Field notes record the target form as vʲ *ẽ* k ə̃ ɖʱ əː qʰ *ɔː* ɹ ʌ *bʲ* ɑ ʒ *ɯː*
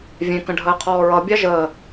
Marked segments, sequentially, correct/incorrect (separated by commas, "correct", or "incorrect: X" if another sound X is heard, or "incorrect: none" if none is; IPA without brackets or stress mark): correct, correct, correct, incorrect: əː